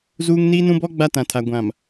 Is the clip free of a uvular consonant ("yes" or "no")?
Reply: yes